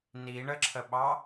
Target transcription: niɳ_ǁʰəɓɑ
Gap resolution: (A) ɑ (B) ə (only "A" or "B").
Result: B